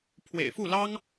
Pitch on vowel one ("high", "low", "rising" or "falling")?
low